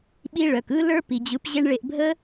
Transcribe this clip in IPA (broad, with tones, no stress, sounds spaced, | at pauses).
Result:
ɓ i˦ ɭ œ˨ k ɯ˧ l ə˞˧ p i˨ d͡ʑ ɯ˨˦ p ʑ e˦ ɳ ɭ e˧ ʔ bʱ ə˦